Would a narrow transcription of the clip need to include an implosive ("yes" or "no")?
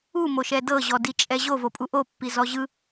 no